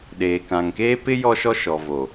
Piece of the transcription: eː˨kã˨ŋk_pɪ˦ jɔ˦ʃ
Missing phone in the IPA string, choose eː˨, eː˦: eː˦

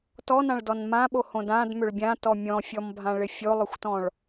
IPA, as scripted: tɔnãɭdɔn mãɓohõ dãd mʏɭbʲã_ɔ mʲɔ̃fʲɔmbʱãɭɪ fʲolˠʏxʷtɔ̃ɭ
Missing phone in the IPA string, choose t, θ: t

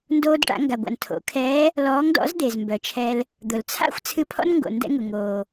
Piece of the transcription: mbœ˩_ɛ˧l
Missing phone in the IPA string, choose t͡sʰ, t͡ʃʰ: t͡ʃʰ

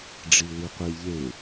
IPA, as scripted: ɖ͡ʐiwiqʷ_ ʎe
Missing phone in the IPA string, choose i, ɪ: i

